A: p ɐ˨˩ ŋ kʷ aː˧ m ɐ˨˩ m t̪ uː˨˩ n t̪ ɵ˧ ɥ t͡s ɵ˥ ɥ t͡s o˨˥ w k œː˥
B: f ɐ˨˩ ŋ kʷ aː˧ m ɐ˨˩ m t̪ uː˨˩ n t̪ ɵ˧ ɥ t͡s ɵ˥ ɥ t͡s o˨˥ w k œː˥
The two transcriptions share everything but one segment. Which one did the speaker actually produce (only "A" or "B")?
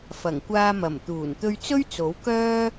B